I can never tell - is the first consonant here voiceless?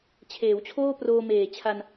yes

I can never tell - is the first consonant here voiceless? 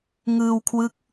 no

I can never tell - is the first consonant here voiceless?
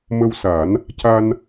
no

